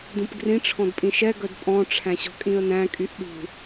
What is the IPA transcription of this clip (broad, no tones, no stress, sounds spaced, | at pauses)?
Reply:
d ũ p ɡ r ĩ ʈ͡ʂʰ ɔ̃ d pʼ ĩ ʃ ɛ ɡ œ d pʼ ɔ̃ ʈ͡ʂʰ æ̃ ɕ ɔ̤ kʼ ĩ ə̯ n æ̃ kʼ y ʔ ɗ ṳ